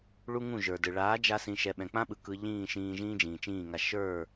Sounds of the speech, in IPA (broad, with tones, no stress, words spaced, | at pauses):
ɭu˦ŋũ˦˨ʒə˞˨dɯ˨ ɭaː˨˦d͡ʒa˧ sĩ˧ʃɛ˧ ɓɛ̃˨k͡pã˦ɓɯ˨ kɯ˧ ʎĩː˦˨ʃĩː˧ʒĩː˦ d͡ʒĩː˨t͡ʃĩː˦˨ŋa˧ ʃə˞˦˨